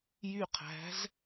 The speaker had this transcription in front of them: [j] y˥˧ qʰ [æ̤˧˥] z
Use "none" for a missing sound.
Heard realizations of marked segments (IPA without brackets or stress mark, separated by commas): j, æ̤˧˥